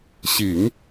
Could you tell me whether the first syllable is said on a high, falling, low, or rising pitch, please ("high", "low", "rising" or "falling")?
low